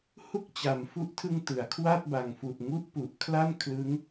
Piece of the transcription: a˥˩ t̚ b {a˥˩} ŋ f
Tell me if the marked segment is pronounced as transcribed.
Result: no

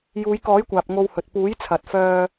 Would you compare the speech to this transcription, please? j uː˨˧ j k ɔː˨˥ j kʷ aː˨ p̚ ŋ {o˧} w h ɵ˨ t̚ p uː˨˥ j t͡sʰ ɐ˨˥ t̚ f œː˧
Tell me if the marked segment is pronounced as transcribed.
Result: yes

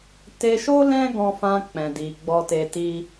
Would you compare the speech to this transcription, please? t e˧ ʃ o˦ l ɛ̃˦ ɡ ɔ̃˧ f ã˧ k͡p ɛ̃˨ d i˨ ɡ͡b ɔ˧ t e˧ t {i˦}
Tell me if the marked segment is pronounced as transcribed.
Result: yes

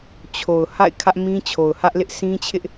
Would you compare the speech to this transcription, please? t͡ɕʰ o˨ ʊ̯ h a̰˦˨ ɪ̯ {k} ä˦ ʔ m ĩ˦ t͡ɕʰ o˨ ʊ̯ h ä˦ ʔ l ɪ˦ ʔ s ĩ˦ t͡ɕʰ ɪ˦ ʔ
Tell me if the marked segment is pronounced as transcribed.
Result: no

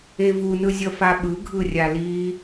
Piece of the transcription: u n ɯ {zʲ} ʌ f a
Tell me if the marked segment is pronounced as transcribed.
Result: yes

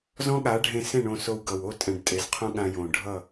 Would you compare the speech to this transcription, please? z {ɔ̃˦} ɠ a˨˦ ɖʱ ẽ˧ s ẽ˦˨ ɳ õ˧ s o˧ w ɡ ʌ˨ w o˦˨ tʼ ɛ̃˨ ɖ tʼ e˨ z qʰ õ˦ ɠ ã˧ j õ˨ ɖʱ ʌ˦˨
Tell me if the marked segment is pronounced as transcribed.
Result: yes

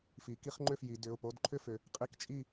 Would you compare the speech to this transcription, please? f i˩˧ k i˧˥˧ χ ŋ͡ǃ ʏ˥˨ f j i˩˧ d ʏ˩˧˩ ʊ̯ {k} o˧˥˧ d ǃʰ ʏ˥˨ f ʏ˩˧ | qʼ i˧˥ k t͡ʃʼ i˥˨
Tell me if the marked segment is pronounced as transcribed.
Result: no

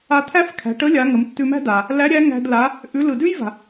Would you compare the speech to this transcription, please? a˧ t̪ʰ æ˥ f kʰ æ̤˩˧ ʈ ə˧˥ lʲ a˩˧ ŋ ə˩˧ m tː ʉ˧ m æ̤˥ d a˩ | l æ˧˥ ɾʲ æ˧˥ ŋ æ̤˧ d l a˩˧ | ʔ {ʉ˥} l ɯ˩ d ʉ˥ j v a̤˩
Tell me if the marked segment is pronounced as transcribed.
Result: no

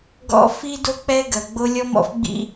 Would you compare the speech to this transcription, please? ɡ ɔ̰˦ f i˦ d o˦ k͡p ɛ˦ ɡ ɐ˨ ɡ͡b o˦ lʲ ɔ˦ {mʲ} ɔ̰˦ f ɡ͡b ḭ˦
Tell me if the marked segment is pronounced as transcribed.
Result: no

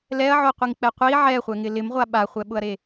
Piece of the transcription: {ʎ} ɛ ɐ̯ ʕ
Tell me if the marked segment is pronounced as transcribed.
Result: no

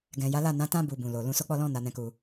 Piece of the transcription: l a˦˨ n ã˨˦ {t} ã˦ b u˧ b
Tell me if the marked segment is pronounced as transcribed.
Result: yes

